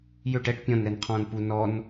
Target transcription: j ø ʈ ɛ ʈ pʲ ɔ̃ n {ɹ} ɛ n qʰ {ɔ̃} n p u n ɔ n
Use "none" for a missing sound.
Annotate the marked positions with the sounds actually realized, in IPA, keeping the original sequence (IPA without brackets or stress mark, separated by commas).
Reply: ɾ, ɔ̃ː